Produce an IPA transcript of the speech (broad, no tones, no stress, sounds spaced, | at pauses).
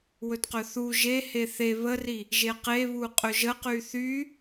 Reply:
w ɵ t q ɵ θ u ʒ e h e θ e β ə r i | ʒ e q e β u qʼ ɵ ʒ ə q y θ y